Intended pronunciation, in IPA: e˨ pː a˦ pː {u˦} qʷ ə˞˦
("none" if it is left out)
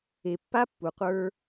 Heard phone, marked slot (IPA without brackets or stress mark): u˨